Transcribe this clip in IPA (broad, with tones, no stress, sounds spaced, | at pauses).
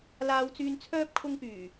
l aː˧ w t͡s yː˧ n t͡sʰ œː˥ p̚ kʰ ʊ˧ ŋ p yː˨˩